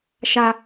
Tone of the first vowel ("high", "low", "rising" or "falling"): high